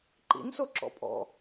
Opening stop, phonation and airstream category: click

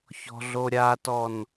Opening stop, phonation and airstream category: plain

